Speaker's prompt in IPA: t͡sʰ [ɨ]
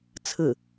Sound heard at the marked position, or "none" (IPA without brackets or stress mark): ɨ